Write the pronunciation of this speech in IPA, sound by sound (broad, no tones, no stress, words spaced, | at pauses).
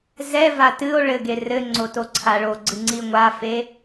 zɛva tɨo̯ ɭɘɡe rɘŋ͡ǀo toǀʰaɭoɡ͡ǀɨ ŋ͡ǀiŋʷafe